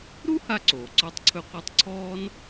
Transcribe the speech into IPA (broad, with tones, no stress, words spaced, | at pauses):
ɾu˥ ha˥ǀoː˩ ǀɔ˥tˤǀʰɵ˥qʷɛ˥tˤ ǀʰɔː˥n